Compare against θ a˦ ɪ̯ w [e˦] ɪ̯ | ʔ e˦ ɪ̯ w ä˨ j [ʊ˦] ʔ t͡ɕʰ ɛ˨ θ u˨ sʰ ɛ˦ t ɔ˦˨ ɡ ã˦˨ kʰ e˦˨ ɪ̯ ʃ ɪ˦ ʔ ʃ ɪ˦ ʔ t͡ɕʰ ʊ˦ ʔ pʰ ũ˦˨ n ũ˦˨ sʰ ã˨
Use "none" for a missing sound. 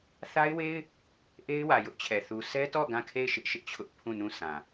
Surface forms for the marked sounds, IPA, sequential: e˦, ʊ˦

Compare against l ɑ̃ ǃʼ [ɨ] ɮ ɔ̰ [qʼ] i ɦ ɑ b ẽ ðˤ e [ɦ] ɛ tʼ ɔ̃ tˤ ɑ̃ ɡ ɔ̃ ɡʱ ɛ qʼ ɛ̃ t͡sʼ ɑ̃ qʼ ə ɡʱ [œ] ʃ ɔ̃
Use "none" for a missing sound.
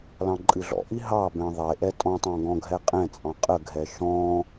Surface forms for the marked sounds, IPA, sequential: ɨ, ʔ, ʔ, ɛ

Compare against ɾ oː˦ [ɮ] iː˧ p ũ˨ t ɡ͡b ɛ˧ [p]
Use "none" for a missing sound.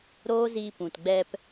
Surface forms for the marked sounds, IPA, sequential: z, p

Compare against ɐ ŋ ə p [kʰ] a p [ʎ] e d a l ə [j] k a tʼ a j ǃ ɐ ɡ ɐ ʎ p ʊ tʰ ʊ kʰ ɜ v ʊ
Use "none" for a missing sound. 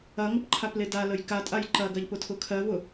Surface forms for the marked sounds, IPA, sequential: ǃʰ, l, j

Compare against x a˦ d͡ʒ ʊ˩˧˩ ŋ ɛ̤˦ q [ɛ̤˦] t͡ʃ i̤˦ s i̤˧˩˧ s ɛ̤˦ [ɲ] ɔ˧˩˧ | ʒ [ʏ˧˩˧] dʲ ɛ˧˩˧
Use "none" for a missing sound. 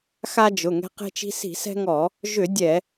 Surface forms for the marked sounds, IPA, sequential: e̤˦, ŋ, ʏ˧˩˧

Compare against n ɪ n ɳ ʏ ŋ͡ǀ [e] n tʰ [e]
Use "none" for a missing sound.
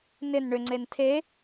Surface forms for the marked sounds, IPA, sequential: e, e

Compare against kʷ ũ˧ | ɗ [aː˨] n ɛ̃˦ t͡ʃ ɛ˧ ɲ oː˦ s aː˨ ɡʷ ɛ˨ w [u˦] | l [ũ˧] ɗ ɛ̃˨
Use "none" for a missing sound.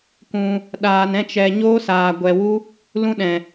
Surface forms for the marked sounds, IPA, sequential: aː˧, u˦, ũ˦

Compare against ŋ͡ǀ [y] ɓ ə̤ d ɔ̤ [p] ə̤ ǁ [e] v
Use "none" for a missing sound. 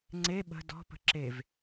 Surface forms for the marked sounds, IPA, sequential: e, p, e

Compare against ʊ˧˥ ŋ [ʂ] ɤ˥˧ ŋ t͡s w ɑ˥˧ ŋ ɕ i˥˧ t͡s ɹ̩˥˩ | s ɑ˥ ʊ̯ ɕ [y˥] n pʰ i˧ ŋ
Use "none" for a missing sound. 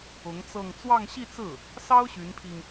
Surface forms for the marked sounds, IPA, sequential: t͡s, y˧˥

